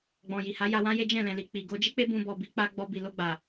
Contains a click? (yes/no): no